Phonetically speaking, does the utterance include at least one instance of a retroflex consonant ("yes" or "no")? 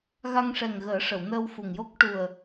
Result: yes